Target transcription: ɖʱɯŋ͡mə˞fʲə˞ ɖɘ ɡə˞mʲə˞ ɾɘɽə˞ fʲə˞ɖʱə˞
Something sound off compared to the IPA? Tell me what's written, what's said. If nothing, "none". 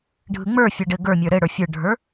none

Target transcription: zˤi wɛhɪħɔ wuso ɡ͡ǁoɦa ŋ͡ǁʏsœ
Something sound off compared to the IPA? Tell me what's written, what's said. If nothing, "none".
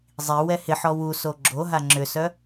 none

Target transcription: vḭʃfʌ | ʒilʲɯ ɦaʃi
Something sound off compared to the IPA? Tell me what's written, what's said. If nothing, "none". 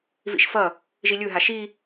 none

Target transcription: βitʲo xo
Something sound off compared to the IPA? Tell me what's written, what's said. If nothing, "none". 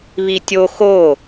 none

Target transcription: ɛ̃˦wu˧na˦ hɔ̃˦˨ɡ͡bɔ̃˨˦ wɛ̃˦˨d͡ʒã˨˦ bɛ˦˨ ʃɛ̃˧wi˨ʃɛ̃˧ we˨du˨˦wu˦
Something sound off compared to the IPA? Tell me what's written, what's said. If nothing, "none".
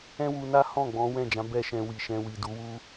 e˨ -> i˨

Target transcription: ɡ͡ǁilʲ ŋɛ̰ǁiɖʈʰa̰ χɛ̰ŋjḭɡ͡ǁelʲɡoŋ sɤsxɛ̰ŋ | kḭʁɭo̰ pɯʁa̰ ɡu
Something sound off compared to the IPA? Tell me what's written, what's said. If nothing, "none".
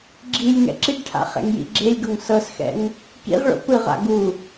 none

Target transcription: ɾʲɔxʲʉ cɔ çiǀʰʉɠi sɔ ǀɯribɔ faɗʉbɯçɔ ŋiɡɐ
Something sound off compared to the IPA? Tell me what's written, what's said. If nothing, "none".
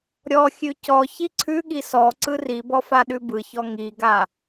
ɐ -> a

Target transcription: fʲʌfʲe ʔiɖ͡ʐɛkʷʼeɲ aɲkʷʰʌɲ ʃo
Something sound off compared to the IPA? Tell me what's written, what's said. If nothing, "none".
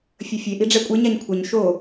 none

